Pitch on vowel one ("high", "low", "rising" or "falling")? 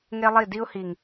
high